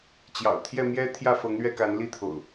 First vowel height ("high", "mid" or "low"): low